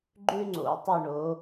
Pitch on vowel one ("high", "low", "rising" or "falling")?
high